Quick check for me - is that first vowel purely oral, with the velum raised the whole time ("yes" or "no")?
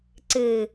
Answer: yes